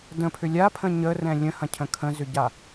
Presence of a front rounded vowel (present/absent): present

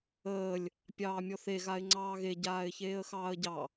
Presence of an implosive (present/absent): absent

